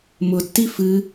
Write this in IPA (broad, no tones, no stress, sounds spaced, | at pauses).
m ʊ tː i f ɨ